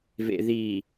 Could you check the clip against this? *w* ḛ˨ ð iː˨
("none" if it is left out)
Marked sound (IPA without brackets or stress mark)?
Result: v